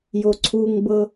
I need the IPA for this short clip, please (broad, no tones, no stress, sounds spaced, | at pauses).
j o ǀʰ u ŋ b ɤ